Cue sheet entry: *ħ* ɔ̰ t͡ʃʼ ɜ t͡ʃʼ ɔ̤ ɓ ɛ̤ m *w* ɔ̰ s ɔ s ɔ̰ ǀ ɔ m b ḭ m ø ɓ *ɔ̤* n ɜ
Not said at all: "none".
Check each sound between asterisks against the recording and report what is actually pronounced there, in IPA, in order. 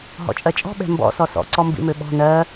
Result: ɦ, b, ɔ̤

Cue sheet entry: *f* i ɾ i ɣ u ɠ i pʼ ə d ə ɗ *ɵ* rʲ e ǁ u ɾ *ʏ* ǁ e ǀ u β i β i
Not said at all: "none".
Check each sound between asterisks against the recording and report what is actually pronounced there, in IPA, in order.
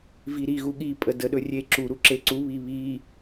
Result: v, ɵ, u

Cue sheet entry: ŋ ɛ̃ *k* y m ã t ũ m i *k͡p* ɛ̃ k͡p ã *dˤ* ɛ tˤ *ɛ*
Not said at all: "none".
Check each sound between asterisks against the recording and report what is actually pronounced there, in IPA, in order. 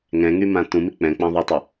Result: ŋ, k͡p, ðˤ, ɛ

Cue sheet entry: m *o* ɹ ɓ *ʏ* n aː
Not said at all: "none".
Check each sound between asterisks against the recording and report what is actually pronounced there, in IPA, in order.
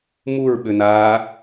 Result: u, ʏ

